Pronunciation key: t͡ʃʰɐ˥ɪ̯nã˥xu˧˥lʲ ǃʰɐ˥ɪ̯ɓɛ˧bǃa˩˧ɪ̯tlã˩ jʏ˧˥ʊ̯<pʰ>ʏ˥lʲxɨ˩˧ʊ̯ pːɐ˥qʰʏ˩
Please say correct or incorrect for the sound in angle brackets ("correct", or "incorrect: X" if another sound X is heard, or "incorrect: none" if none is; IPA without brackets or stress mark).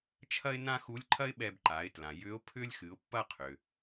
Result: correct